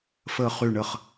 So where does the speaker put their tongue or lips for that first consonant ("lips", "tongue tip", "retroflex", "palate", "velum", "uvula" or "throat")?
lips